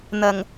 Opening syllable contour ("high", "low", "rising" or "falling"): low